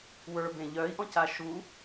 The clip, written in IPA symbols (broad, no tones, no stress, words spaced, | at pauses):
wə˞bẽ ʎœi̯ʔɔ̃ca ʃu